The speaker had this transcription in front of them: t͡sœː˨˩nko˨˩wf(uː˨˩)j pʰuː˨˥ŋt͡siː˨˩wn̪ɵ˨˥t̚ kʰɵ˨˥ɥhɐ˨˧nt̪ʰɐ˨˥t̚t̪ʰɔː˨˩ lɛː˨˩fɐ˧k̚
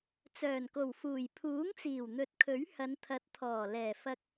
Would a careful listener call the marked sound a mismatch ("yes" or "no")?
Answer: no